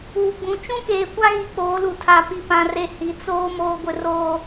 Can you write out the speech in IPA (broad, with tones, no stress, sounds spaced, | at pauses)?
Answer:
uː˨ ɡ͡b ũ˨ t͡ʃ ũ˦ k eː˨ kʷ a˦ ɣ i˨ k͡p oː˨˦ l u˨ tʰ a˨ p i˨ p ã˨ r e˨ h i˨ t͡s oː˦ m oː˦ ɡʷ ɪ˦ r oː˦